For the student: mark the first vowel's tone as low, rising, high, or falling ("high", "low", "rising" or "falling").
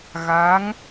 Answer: rising